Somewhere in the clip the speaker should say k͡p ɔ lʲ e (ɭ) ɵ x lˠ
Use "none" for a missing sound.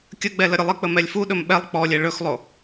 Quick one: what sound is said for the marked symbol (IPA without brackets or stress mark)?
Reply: ɭ